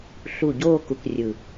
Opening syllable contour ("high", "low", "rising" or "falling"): low